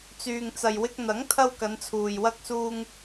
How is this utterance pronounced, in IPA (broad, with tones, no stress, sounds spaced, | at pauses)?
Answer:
t͡s yː˨ ŋ t͡s ɐ˨ j w ɪ˧ k̚ n̪ ɐ˨˥ ŋ t̪ʰ ɐ˧ w k ɐ˨˧ n t͡sʰ uː˨ j w ɐ˧ k̚ s uː˧ ŋ